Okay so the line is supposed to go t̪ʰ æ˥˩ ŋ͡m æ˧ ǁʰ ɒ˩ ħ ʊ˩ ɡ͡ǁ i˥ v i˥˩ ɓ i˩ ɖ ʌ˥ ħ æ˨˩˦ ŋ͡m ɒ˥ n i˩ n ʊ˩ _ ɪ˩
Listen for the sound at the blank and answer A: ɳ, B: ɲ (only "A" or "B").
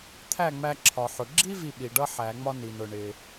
A